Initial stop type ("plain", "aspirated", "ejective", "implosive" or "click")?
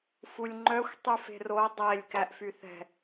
click